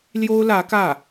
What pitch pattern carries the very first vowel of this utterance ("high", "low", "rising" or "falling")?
high